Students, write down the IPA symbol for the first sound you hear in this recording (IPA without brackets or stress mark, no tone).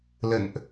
l